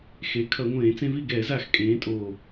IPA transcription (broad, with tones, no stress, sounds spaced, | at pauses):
x e˩˧ kʰ ʌ˧˩˧ ŋʷ ẽː˧˩˧ t͡s ẽ˦ v i˥˨ ɡ ɛː˧˩˧ z a˨˩ x kʼ ẽː˩˧ tʼ oː˨˩